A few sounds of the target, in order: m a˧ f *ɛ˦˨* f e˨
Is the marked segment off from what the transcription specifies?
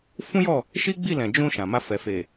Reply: yes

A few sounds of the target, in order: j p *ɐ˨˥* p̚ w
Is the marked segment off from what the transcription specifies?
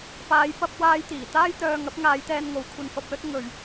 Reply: yes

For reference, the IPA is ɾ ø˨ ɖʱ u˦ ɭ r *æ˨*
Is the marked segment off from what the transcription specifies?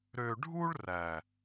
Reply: no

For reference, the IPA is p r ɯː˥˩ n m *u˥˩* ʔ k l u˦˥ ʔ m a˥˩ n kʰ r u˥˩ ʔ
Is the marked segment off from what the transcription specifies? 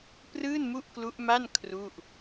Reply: no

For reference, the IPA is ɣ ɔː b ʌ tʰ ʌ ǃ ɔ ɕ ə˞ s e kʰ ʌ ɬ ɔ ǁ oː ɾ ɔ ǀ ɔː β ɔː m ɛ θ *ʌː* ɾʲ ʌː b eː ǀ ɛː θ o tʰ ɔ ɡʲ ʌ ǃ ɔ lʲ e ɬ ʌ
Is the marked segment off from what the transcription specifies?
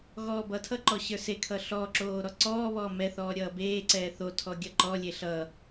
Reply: yes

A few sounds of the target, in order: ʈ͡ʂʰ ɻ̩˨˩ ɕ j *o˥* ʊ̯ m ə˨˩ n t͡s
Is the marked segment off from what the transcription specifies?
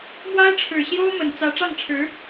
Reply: no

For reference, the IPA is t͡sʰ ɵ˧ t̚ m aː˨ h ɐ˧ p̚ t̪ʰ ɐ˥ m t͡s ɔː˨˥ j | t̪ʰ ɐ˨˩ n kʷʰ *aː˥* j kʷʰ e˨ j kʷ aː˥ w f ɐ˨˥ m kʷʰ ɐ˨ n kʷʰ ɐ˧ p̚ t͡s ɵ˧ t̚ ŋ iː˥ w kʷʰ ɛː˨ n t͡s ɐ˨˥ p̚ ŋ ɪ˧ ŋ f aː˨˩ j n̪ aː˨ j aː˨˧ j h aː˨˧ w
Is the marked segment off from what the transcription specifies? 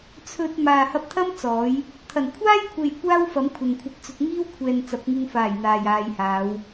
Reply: no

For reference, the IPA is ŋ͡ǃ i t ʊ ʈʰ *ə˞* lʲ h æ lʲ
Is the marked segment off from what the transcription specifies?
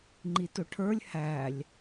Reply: no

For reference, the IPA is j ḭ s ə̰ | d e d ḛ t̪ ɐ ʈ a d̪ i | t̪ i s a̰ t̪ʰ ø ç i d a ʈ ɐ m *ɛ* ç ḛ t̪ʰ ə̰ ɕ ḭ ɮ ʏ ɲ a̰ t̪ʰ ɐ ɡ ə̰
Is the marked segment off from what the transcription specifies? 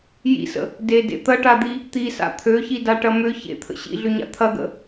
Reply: yes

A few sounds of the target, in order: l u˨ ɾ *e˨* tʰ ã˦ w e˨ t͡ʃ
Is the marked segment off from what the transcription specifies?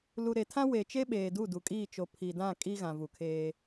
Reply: no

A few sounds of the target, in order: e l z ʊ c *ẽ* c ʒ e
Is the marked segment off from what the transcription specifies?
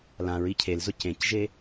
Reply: no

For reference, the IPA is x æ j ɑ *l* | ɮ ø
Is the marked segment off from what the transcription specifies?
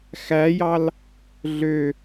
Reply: no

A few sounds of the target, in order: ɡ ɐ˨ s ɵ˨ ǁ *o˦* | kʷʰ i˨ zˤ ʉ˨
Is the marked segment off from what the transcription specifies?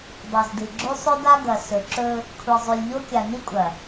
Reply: yes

